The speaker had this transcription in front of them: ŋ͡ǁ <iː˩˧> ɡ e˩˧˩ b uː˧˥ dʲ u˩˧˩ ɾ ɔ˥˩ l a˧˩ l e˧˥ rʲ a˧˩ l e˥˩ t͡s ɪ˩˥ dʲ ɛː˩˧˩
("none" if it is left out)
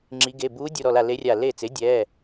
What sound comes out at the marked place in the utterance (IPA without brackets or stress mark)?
i˩˧